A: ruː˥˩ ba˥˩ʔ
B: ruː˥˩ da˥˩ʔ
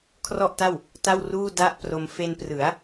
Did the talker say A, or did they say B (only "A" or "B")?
B